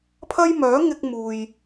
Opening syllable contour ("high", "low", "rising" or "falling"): high